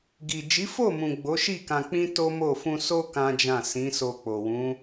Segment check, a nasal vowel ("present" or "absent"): present